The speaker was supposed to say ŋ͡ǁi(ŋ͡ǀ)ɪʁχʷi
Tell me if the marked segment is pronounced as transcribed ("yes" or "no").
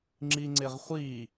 yes